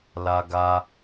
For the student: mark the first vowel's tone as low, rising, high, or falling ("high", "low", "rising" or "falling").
high